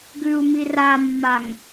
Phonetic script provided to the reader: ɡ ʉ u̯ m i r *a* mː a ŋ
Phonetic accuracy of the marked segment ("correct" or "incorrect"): correct